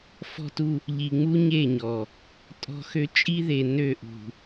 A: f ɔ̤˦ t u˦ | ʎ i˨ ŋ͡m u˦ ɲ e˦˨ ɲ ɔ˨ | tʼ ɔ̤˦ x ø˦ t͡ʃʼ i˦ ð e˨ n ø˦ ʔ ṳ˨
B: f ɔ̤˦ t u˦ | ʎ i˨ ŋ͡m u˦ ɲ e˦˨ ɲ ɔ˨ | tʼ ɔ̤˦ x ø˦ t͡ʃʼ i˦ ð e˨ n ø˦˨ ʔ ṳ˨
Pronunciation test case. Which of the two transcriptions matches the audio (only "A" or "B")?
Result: B